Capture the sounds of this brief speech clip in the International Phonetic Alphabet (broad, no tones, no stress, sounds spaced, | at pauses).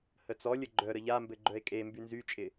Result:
h ə t͡s ɔ lʲ ə ɡ͡ǃ œ ɾ ə ʎ a m b ɘ ɡ͡ǃ œ e̯ kʼ e m b y n z y t͡ʃʼ ɪ